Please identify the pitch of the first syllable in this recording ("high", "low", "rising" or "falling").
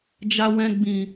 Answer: low